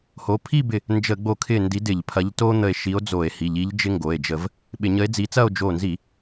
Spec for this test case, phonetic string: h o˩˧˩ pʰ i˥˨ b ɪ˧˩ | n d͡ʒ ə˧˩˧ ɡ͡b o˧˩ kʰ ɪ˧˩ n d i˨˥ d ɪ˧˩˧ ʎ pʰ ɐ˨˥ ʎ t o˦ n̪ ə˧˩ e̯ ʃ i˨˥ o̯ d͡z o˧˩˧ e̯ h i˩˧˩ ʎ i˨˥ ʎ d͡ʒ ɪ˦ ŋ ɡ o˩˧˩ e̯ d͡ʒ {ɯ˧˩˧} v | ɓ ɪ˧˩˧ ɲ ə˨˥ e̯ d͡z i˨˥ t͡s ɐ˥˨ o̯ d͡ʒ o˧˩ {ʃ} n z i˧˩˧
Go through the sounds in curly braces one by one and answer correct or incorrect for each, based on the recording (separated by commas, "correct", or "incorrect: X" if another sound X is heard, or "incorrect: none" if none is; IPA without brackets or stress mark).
incorrect: ə˧˩˧, incorrect: none